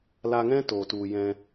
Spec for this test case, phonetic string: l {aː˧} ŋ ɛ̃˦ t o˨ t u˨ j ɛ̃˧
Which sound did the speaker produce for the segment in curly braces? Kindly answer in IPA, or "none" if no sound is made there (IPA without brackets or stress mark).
a˧